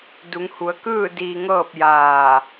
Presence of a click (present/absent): absent